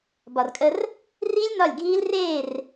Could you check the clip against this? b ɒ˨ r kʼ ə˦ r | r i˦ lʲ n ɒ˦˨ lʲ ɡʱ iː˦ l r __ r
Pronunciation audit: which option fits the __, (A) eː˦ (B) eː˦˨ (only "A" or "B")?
B